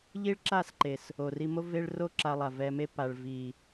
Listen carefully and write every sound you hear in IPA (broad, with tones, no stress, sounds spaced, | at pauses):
ʎ i˦ ɭ ǁ a˦˨ s ǃ e˨ s | o˨ r i˧ m o˦ v e˦ ɭ r o˦ ǁ a˧ lˠ a˨ v ɛ˧ m e˦ p a˨ ɭ v i˨